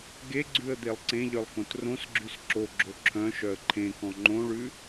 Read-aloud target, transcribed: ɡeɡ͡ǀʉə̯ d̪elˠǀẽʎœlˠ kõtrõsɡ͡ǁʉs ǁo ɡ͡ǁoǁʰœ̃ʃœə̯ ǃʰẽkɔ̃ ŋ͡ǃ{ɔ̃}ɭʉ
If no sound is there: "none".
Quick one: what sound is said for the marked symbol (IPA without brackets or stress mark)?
õ